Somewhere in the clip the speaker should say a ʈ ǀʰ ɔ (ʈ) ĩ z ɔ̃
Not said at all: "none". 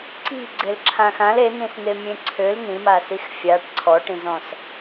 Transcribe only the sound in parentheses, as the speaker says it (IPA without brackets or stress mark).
ʈ